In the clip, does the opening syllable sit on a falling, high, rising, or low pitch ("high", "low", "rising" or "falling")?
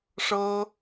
high